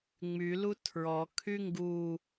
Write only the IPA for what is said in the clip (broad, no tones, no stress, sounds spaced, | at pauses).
ŋ͡m y l u tʰ ɹ ɔ kʰ y ŋ ɡ u